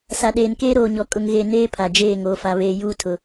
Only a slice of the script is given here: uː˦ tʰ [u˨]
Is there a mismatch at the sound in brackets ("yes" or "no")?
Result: yes